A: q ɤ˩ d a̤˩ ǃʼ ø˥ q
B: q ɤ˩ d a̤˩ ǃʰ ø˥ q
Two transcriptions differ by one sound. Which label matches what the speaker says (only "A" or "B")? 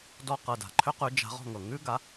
B